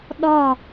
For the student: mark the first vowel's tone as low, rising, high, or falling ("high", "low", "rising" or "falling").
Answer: falling